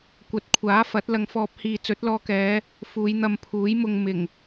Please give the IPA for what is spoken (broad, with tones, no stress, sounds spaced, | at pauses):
kʷ ɐ˨ t̚ kʷʰ aː˨˥ f ɐ˨˥ t̚ l ɐ˧ ŋ f ɔː˧ p̚ h iː˨ t͡s ɵ˨˥ t̚ l ɔː˧ k ɛː˨˧ | f uː˨˧ j n̪ ɐ˧ m pʰ uː˨˥ j m ʊ˧ ŋ m ɪ˨˩ ŋ